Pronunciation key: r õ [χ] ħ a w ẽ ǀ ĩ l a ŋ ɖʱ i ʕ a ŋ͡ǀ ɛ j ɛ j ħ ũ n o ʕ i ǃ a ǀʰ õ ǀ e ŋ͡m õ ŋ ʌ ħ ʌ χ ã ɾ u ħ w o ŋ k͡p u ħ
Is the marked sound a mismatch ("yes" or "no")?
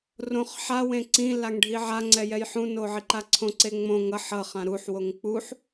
no